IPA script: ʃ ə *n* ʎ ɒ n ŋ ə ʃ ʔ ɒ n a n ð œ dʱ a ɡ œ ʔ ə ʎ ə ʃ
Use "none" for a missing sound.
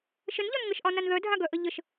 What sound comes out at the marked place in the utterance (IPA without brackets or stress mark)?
n